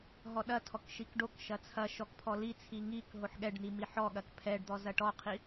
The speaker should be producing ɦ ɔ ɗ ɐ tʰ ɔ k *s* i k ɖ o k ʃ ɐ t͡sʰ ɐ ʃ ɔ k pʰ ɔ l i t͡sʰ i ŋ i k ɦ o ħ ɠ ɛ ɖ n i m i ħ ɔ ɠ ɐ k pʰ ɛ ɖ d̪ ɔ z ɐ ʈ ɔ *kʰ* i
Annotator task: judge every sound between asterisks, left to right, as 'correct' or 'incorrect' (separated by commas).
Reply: incorrect, incorrect